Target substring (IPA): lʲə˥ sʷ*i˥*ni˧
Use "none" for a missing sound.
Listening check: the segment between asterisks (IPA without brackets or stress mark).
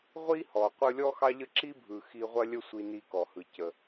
i˧